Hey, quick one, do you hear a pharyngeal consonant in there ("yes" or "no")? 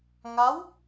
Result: no